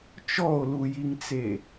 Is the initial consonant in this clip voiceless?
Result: yes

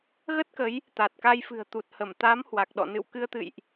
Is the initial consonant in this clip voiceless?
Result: no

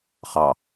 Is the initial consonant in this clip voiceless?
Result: yes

